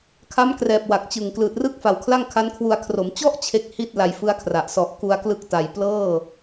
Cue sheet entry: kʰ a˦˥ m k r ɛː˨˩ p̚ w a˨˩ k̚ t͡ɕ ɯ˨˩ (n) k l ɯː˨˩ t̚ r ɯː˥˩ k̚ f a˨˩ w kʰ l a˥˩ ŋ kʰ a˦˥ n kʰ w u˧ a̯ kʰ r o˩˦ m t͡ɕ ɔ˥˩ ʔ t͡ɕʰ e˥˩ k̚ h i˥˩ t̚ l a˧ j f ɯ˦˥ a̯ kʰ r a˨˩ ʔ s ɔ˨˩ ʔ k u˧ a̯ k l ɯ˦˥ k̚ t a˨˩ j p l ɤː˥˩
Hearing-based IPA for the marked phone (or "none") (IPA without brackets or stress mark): ŋ